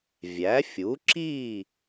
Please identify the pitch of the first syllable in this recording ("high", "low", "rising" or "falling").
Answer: rising